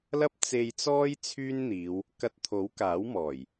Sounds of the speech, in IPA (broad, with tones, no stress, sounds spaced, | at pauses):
l ɐ˥ p̚ t͡s e˧ j t͡s ɔː˥ j t͡sʰ yː˥ n n̪ iː˨˧ w | k ɐ˧ t̚ t̪ʰ o˨˥ w k aː˨˥ w m ɔː˨˩ j